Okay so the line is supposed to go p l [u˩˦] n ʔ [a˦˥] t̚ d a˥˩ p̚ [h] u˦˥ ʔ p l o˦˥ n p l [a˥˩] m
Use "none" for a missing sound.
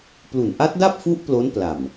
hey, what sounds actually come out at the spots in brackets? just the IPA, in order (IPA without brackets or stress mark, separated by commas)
u˨˩, a˦˥, f, a˨˩